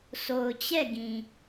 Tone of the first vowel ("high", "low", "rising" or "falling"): low